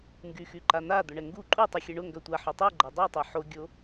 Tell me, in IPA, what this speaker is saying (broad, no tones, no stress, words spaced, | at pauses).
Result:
ŋɡyxyǃan̪a d̪ʊɳɛŋɡu ǃʼutˤy xʲɛɳʊ ŋɡœtʷa ħʊtˤu ɡ͡ǃadˤotˤʊ ħoɡʲo